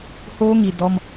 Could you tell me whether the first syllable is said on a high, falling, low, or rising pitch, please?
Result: high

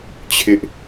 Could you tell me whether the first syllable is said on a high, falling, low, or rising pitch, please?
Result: high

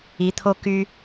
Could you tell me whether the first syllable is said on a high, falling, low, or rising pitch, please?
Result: rising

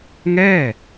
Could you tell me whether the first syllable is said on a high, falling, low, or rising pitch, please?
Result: falling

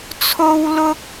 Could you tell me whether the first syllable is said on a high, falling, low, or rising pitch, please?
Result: high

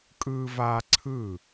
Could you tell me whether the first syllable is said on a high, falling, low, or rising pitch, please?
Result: high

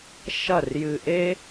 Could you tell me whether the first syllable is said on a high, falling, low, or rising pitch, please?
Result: falling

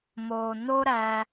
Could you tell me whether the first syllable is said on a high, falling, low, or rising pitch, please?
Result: low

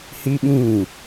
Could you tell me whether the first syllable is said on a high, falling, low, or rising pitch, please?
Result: high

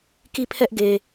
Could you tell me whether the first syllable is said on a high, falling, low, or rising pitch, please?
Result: falling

